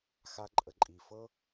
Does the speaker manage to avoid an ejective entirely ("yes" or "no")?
no